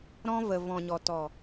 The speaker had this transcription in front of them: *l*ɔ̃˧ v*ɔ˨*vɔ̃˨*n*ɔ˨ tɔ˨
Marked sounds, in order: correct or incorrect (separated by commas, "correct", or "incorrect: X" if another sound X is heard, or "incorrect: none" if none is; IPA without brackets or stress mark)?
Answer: incorrect: ɾ, incorrect: ə˨, incorrect: ɲ